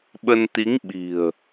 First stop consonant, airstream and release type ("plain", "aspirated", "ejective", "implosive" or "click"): implosive